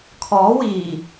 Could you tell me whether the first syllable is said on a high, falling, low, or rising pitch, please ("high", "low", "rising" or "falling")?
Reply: rising